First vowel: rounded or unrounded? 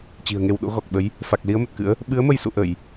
unrounded